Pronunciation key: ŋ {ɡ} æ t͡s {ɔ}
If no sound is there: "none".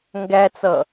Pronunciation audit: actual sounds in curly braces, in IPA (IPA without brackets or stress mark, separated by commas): ɡ, ʌ